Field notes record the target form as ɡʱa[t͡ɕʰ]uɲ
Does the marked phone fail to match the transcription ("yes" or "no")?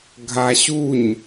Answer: yes